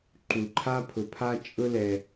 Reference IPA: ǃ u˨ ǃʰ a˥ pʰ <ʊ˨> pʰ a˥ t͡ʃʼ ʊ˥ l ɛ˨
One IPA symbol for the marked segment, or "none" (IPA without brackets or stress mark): ʊ˨